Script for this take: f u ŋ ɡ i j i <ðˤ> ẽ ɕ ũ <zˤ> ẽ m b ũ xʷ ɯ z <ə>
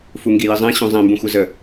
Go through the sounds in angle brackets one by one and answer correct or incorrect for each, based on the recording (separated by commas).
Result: incorrect, correct, correct